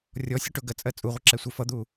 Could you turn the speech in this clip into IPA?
rʲ ɔ sʲ ʊ ʈ ʊ ɡ ɜ t͡sʼ ɜ t͡sʼ u ʁʷ ʌ ǁ ɛ sʷ i f ʌ d̪ u

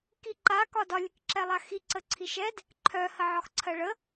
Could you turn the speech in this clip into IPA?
k i ǃ a k ɒ d ɒ lʲ ɘ k ǁ ɛ lˠ a x i ǀ ə ǀʰ i ʃ ɛ d | ǃʰ œ h ə ʕ ɒ x ǀʰ ɜ ɭ ə

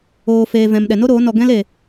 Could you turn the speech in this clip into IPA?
oː˨ f eː˨ v ɛ̃˨ m ɗ ɛ˨ n o˦ ɾ oː˨˦ n ɔ˧ ɡ ɛ̃˦ l e˨

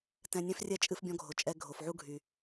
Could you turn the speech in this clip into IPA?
t ɛ̃˧ nʲ ɛ̃˦ f rʲ ɛ˦ t͡ʃʼ ɨ˧ f bʲ ɔ̃˧ ɡʱ o˨ t͡ʃʼ ɛ˧ ɡʱ o˨ f ʕ u˦ ɡʱ y˨

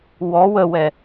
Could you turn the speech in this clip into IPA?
w ɔ w ə w ɛ

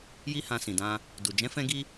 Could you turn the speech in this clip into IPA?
j i˦ h ã˧ s ĩ˨ d ã˧ | d u˨ d͡ʒ ɛ̃˨˦ f ɛ̃˧ ɡ i˧

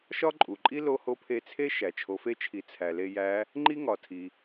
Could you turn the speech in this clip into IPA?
ʃ ɒ˥ ǃʼ u˩ ǃʼ i˥ l o˧ h o˧˥ pʰ e˧ t͡sʰ e˥ ʃ æ˩ t͡ʃʰ o˩˧ f e˧˥ t͡ʃʰ i˩˧ t͡sʰ æ˩ l e˧ j æ˧˥ | ŋ͡ǃ i˥ ŋ ɒ˩ tʰ i˩

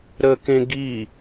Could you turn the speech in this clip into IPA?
ɾ ə k ẽ ɡ i

